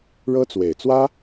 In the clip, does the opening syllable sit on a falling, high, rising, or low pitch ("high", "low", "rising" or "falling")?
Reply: high